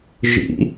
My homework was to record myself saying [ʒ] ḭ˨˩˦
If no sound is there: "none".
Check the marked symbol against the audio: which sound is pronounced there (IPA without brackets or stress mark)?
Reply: ʒ